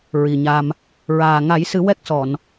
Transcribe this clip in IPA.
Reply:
ɹ i˨˩ ɲ a˧ m | ɹ aː˨˩ ŋ a˨˩˦ j s ɨ˨˩˦ w ɛ˦˥ k̚ s ɔ˨˩˨ n

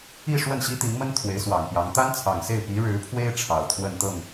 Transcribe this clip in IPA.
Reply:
i˥˧ ʂ w ə˥˩ n ɕ i˥ t̪ i˧˥ ŋ m ə˥ n t̪ʰ w e˧˥ ɪ̯ s w ɑ˨˩ ŋ p j ɑ˧˥ ŋ t̪ a˥ n t͡sʰ ɑ˨˩ ŋ s e˥˩ ɪ̯ p i˧˥ ɻ ɻ̩˧˥ pʰ w e˥ ɪ̯ ʈ͡ʂʰ ɑ˨˩ ʊ̯ t̪ʰ w ə˥˧ n t̪ ɤ˥˩ ŋ

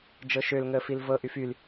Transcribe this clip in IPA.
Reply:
d͡ʒ ɤ ʃ ø l ŋ əː f i l v ɤ ʔ y f y l

